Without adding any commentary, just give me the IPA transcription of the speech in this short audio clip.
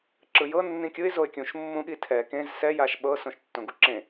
ǁ ɯ j ɤ nː ĩ kʲ ɯ ɪ̯ z o ɪ̯ kʲ ũ ʃ mː ũ ɠ i tʰ ɛ k ẽ z s ɛ j a ʃ ɓ ɤ s õ ʃ tː õ ɡ u ǁ ẽ

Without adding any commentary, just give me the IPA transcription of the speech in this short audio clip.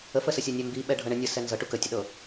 ə f ə s ə sʲ a nʲ ɛ m b i ɓ ɛ ɖʱ ɤ ɳ ə nʲ ə s ɛ n z ɤ ʈ u k ə tʲ ə ɗ ɤ

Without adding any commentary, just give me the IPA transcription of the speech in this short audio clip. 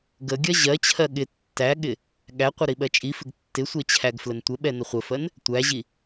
ɡ ə ɡʲ ɜ ʑ ɜ t͡ɕʰ ɜ ɠ ɪ tː æ ɠ ɪ | ɠ æ qʷ ə ɾ i ɓ ɜ t͡ʃʼ i f ɪ ɡ tː ɪ sʷ ɛ t͡ɕʰ æ ɡ f l ə n tʷ ə ɓ ɛ n ə χʷ ə f ɜ n | tʷ æ ʑ i

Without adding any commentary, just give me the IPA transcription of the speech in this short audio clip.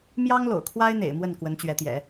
m j ɑ˥ ŋ l o̰˨˩ ʊ̯ kʰ w a˥ ɪ̯ n̪ ḛ˨˩ ɪ̯ m w ə˥˩ n k w ə˧˥ n t͡ɕ ɥ ɛ˧˥ t̪ j ɛ̰˨˩˦

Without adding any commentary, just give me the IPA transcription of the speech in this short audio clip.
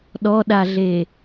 ɗ ɔ ɗ a ɮ e

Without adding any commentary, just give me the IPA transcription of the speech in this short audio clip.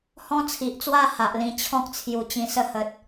h ɔ̃˦ t͡sʰ i˨ ʔ t͡s w a˥˧ h a˨ ʔ l ĩ˧ t͡ɕʰ ɔ̃˦ k̚ t͡sʰ j u˨˩ t͡ɕ ĩ˧ s ə˥˧ h ə˨ t̚

